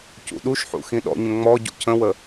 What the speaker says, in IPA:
c ṵ ɗ u ʃ ħ ṵ x ĩ ɗ ɔ̰ ɲ ə̃ ŋ͡m ɔ ɟ ṵ cʰ ə̃ w ə

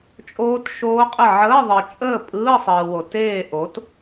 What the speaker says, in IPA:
t͡ʃʼ oː˦˥ t ʃ oː˦˥ qʼ ə˥˨ ʕ əː˧˥˧ ðˤ ɯ˨ t͡ʃʼ əː˥˨ pʼ ɯː˧˥˧ sˤ ɯː˨ w o˨ t eː˥˨ ʔ o˩˥ t

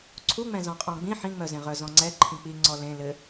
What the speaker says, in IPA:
ǀʰ u ŋ͡m ɛ̃ z ɔ̃ qʼ ɔ̃ ɡ͡b ĩ ħ ĩ ŋ͡m œ z ẽ ʁ œ z ɔ̃ ŋ͡ǀ ɛ ǃʰ ĩ k͡p i ŋ͡ǀ ɔ l ẽ l ɘ

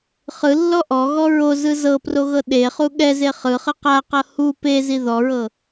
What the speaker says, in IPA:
χ ɯ lː ɔ ʔ ɔ ɣ ɔ ɹ o z ɯ z ɤ p r o ɣ ɤ ɗ e χ u ɠ ɛ z e χ ɯ χ ɯ q a q ɤ h u p e z i ð ɔ ɹ ɤ

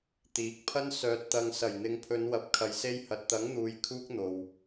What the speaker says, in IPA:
t̪ iː˨˥ k̚ pʰ ɐ˥ n s œː˨ t̚ t̪ ɐ˨ ŋ s ɐ˨˩ j n̪ ɪ˨˧ ŋ pʰ ɵ˨˧ n w ɐ˨˥ p̚ kʰ ɐ˨ j s e˧ j h ɐ˨ t̚ t̪ ɐ˨˥ ŋ n̪ uː˧ j kʰ uː˥ k̚ n̪ o˨ w

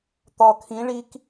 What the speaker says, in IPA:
t̪ ɒ kʰ ĩ ɭ i k

